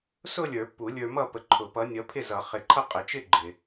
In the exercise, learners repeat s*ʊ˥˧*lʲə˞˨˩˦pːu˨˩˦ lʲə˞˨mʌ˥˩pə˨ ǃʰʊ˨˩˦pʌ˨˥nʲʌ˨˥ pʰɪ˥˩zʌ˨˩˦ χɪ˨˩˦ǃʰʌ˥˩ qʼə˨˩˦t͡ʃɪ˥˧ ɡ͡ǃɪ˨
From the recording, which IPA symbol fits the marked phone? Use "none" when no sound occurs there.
ʊ˥˧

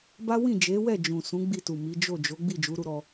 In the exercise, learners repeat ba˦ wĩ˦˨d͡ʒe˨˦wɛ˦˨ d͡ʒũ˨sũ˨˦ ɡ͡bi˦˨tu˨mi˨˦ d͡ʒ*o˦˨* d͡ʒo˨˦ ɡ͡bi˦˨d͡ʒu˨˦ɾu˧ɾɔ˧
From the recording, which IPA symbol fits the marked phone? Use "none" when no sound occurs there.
o˦˨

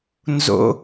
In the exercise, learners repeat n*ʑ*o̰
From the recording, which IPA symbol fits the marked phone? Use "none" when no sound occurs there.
z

